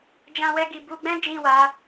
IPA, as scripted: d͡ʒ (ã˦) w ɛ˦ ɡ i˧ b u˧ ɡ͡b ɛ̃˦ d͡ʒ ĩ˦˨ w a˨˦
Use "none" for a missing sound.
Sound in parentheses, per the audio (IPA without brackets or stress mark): ã˦